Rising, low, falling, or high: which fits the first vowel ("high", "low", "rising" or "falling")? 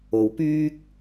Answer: rising